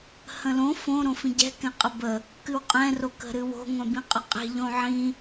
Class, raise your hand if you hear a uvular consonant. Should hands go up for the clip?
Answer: yes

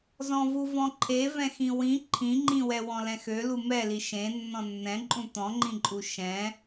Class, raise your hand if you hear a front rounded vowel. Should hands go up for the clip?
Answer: yes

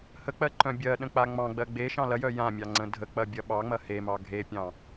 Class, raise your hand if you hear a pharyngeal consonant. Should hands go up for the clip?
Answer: no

